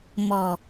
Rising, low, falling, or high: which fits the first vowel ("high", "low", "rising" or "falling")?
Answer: low